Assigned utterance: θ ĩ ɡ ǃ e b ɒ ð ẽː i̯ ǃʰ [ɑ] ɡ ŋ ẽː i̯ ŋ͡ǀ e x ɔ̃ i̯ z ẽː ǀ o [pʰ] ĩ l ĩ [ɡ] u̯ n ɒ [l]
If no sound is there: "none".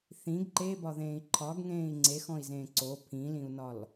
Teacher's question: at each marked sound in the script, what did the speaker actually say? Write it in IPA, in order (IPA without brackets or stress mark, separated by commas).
ɒ, pʰ, none, l